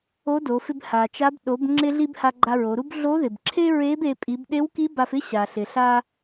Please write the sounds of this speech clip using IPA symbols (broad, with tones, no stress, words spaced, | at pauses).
o˧˥do˩˧fɪ˧b ha˩t͡ʃa˧˥b ɗo˩˧b ŋ͡ǁɪ˧ɮi˧b ha˧ɡ͡ǃa˧ɹo˩˧ɾu˥b ɮo˧˥ðɪ˩bǁʰe˥ɹe˧˥b e˩˧pʼi˩˧bɗe˧˥wki˧˥ ba˧fɪ˥ ɕa˩ɬɪ˩ ɬa˧